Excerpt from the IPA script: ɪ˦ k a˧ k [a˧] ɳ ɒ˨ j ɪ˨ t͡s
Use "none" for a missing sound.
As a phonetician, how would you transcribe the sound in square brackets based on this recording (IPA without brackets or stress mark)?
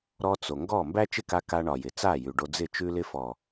a˧